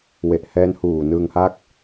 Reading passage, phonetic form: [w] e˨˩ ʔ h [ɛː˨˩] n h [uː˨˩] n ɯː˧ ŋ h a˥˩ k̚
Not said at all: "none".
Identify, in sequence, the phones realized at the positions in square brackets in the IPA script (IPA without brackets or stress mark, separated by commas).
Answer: w, ɛː˦˥, uː˨˩